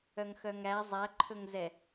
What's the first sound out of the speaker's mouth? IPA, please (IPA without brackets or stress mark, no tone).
œ